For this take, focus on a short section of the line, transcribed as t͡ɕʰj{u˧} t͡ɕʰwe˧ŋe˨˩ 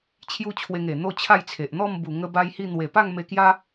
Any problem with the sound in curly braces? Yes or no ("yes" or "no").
no